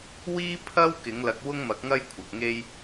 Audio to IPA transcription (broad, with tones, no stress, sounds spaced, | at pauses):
w iː˥ pʰ ɐ˥ w k ɪ˨˥ ŋ l ɐ˧ k̚ w ʊ˥ ŋ m ɐ˨˥ k̚ ŋ ɐ˥ j kʷʰ ɐ˨ k̚ ŋ e˥ j